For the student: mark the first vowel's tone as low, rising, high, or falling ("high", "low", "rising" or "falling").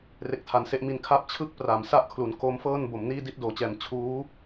low